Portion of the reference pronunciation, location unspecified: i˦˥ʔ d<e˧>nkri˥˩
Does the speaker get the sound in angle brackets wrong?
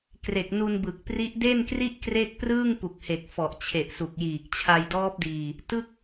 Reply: yes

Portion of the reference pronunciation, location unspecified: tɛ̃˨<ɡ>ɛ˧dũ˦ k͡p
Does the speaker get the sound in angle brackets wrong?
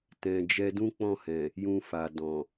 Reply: yes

